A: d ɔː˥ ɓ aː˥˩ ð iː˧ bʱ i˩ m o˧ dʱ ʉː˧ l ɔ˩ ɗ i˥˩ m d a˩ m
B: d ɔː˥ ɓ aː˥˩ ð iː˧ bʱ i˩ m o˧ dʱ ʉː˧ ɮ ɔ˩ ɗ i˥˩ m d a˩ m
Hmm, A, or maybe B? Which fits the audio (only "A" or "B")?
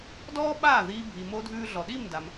B